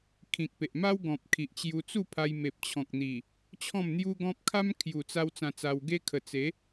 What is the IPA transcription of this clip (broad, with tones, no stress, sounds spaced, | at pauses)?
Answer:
kʰ ĩ˨ k̚ p e˨ ʔ m a˦ w ɡ ɔ̃˨ p̚ kʰ i˨ ʔ t͡ɕ j u˧ t͡s u˥˧ pʰ a˧ j m e˨ p̚ t͡ɕʰ ɔ̃˨ k̚ n̪ i˨˩ | t͡ɕʰ ɔ̃˥˧ m n̪ j u˦ ɡ ɔ̃˦ p̚ kʰ a˦ m kʰ j u˨˩ t͡s a˧ w t͡s ã˧ t͡s a˧ w ɡ e˦ kʰ ə˨˩ t͡s e˨˦